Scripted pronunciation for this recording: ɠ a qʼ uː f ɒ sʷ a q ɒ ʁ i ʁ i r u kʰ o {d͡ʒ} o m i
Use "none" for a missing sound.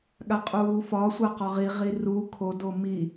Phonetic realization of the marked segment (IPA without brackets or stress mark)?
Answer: d